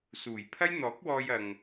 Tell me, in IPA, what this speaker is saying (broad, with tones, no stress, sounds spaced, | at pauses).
s uː˨˩ j pʰ ɐ˥ j n̪ ɔː˨˥ k̚ w ɔː˧ j ɐ˨ ŋ